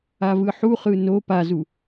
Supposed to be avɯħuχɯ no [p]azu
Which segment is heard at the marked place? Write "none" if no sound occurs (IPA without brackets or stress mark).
p